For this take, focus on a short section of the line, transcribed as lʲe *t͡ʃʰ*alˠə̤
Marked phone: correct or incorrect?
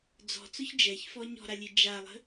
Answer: incorrect